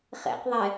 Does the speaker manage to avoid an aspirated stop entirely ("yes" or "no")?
yes